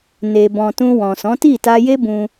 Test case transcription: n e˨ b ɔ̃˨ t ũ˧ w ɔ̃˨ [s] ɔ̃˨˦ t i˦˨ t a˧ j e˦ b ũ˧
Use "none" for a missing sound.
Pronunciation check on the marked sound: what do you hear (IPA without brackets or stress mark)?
s